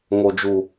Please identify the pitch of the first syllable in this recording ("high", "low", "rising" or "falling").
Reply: low